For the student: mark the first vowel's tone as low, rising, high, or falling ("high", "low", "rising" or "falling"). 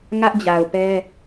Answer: high